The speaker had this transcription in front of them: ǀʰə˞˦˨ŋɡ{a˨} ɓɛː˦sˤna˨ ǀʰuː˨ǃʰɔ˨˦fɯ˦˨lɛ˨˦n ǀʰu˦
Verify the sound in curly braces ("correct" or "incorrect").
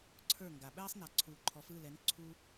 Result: correct